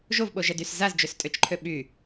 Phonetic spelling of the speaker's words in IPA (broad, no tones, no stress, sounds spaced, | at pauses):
ʒ o v ɓ o ʒ ɛ d y s z a z d͡ʒ ø s tʼ ø t͡ʃ ǃʰ ø ɓ y